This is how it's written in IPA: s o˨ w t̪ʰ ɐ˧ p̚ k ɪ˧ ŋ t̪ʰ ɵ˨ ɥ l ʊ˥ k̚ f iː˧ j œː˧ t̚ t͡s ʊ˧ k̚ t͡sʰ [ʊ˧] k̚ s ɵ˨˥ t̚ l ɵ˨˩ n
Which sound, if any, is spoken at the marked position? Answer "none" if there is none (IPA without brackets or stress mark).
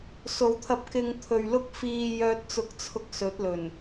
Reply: ʊ˧